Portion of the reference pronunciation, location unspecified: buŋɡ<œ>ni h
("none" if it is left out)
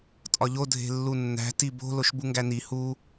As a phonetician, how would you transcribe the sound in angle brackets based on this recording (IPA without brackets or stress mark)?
æ